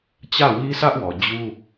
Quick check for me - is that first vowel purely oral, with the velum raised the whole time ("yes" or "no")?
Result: yes